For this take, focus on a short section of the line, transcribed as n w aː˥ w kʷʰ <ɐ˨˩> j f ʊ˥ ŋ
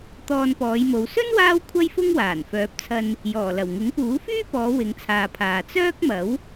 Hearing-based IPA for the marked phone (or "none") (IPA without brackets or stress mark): ɐ˥